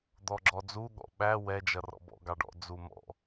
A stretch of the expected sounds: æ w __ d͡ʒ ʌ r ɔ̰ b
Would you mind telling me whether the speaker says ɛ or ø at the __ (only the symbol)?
ɛ